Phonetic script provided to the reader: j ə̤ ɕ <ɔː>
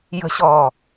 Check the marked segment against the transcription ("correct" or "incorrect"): correct